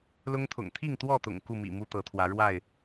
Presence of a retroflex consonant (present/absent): present